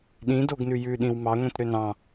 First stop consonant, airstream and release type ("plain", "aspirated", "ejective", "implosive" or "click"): implosive